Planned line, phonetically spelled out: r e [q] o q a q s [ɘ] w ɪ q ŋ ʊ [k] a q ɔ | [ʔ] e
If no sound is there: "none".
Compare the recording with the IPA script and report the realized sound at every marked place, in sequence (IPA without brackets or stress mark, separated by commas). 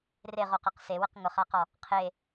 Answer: ʁ, e, χ, qʰ